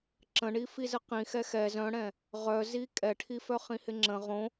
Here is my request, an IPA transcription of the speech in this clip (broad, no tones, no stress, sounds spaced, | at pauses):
ǁ ə̃ ɳ i f i z ə q ĩ x ɛ x ɛ z œ̃ ɽ ɛ̃ | ʁ œ z i kʼ ɛ ʈʰ i f œ χ ĩ h ɪ ŋ͡ǁ ə̃ ʁ õ